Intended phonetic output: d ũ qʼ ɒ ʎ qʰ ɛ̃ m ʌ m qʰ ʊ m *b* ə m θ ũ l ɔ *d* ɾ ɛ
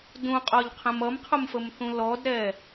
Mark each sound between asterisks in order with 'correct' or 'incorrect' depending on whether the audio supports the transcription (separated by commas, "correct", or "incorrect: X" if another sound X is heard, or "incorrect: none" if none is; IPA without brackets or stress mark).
incorrect: f, correct